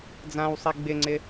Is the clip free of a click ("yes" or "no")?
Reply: no